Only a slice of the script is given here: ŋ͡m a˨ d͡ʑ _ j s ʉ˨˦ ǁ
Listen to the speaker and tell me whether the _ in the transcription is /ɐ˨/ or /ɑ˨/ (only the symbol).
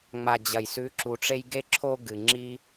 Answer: ɐ˨